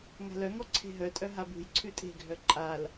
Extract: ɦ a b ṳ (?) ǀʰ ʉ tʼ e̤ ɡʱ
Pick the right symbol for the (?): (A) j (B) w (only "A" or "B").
A